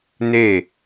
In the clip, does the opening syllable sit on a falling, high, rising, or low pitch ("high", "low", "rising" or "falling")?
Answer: falling